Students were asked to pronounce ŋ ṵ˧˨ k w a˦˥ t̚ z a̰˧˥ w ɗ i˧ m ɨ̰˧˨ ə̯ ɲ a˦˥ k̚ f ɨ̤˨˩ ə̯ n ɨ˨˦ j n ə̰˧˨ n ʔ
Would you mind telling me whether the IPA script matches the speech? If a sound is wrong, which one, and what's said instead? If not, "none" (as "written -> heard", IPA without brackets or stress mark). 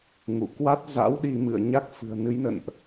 none